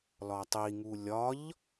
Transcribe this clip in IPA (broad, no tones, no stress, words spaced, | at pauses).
lɒtˤiŋu lʲɒʎ